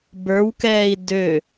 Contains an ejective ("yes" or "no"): no